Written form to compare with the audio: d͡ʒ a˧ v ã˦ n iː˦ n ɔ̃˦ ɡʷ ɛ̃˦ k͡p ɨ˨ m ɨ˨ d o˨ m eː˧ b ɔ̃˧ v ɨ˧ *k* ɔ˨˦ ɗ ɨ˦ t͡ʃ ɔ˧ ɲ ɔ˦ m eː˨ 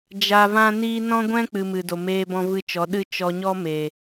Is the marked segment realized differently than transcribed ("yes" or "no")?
yes